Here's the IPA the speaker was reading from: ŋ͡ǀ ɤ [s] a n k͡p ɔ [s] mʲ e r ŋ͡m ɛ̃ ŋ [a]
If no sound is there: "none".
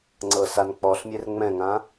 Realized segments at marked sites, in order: s, ɬ, ã

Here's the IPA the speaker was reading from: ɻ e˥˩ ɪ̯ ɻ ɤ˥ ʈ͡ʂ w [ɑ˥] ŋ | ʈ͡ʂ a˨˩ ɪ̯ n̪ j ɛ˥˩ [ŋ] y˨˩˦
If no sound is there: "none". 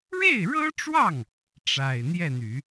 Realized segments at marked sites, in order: ɑ˥˩, n̪

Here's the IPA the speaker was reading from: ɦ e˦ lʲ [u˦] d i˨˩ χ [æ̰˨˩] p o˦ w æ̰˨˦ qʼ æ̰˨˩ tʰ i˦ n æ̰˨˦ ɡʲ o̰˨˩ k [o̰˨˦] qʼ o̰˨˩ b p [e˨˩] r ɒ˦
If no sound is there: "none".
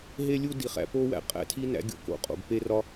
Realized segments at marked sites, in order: u˦, æ̰˨˩, o̰˨˦, e˦

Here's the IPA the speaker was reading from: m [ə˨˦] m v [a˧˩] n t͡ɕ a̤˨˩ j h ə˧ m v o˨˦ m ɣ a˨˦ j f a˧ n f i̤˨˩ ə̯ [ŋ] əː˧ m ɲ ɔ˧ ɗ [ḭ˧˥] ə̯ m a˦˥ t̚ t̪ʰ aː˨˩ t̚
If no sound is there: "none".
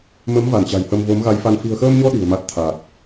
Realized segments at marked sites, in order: ə˨˦, a˧˩, x, i̤˨˩

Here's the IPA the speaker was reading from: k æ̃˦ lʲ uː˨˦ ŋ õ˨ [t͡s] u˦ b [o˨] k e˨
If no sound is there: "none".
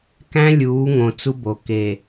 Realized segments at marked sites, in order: t͡s, o˨

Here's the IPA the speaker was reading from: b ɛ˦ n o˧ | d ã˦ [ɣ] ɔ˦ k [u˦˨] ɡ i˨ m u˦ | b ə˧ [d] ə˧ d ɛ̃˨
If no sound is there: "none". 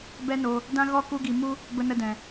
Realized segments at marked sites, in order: ɣ, u˧, n

